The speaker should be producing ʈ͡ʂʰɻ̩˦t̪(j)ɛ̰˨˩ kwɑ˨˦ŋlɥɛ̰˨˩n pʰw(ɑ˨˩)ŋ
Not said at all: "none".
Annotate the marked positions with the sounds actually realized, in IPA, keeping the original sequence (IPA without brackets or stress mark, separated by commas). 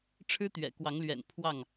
ɥ, ɑ˥˨